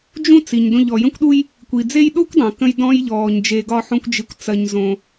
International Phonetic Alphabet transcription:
d͡ʒ ũ˥ t͡s i˩ ɲ d õ˧ ʎ ɔ˩ j ə̃˥ kʷ ɗ u˥ j | kʷ i˩ d͡z e˥ j ɗ o˥ kʷ dˤ õ˩ k ə̃˧ j d ɔ̃˧ j ʎ ɔː˩ ɲ d͡ʒ e˧ ɡ ɒ˥ ħ õ˥ kʷ d͡ʒ i˧ kʷ t͡s ɐ˧ ɲ z õ˧

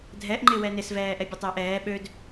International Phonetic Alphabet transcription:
dʱ ɛ ʔ ŋ͡ǃ ɪ w ɛ n ɪ s v ɛː ʔ ɛ bʲ œ tˤ ɪː ʔ ɛː ɓ ø d

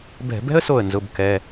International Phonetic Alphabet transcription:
b ɛ̤˧˩˧ b ɛ̤˥ ə̯ s o˧˩ ə̯ n z ʊ˩˧˩ b k ɛ˩˧˩

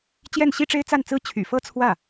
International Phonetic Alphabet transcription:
t͡ɕ j ɛ˥˩ n ɕ i˥ ʈ͡ʂ e˥ ɪ̯ t͡s a˥˩ n t͡s ɹ̩˥ t͡ɕʰ y̰˨˩ f ɤ˥ t͡sʰ w ä˥˩

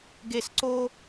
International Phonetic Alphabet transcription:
ɡ e˨ s ǀ o˦

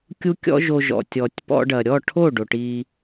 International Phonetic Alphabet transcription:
kʲ u˦ kʲ ɔ̰˦ ʒ o˧ ʒ ɔ̰˨ tʲ ɔ˨ tʲ p ɔ̰˧ ɖ ɐ˨ ɾʲ ɔ˦˨ ʈʰ o˦˨ ɖ o˨ ʈ i˧

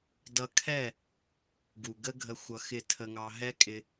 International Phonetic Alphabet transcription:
d ʌ˧ kʰ ɛ˦˨ | ɡ u˨ ɡ ə˦ ɡʱ ə˧ xʷ ʌ˧ x ɪ˦˨ tʰ ə˧ ŋ ɑ˧ ɦ ɛ˦ kʼ ɪ˧

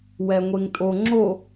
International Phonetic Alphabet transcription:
w ɛ ŋʷ e ŋ tʼ o ŋ͡ǁ o

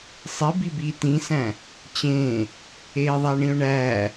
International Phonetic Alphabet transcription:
sˤ i b i b iː t ĩ s æ̃ | t͡ɕ ẽː | eː ðˤ æ ɳ ĩ ʊ̯ ɳ æː

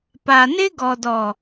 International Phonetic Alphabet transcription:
p a˨ n ɪ˦ ɡ ɔ˨ d ɔ˨

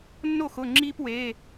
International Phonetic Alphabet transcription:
nː o˥˩ x ʊ˩˧˩ ŋ͡ǁ iː˦ p w e˩˧˩

